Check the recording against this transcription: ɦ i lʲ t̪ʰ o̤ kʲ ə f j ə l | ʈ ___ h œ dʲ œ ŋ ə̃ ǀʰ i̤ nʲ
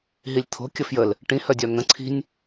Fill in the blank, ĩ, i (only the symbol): ĩ